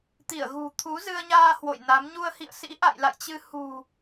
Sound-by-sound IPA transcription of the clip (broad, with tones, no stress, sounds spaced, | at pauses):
t̪ i˧˩ ə̯ ɣ ṳ˨˩ t̪ʰ u˨˦ z ɨ˧ ə̯ ɲ aː˧ h w o̰˧˨ j n a˨˦ m ɲ u˧ ə̯ h ḭ˧˨ ə̯ s ḭ˧˥ ʔ a̰˧˨ j l a̰˧˨ j t͡ɕ ɨ˧ h ṳ˨˩